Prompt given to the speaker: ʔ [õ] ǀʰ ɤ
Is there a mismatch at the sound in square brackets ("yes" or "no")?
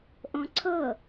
no